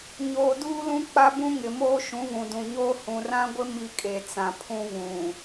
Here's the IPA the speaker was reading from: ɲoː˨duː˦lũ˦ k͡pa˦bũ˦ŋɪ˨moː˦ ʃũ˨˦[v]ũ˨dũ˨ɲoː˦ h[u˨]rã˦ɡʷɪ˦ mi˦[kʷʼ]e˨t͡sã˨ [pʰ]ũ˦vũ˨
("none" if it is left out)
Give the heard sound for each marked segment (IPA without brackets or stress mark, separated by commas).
v, ũ˨, kʼ, pʰ